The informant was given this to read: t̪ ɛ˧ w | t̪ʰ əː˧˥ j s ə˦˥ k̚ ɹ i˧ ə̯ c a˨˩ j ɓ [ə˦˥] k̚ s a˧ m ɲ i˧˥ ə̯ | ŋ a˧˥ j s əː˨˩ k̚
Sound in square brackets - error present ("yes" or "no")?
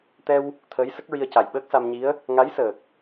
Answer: yes